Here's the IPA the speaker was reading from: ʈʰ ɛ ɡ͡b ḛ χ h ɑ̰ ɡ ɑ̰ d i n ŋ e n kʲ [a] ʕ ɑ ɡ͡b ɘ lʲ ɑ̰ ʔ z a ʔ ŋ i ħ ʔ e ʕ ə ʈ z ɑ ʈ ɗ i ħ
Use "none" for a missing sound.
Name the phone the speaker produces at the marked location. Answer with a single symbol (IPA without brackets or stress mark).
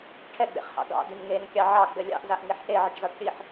ɑ